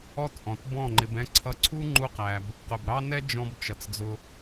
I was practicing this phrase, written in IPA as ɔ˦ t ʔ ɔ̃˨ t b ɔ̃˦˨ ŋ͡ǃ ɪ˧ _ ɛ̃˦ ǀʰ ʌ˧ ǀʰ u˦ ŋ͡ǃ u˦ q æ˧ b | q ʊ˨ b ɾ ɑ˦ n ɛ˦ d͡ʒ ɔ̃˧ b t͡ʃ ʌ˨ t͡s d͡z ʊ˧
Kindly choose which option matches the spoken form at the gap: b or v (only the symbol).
b